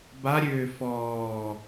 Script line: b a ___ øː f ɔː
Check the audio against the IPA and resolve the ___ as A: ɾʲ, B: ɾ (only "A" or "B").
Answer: A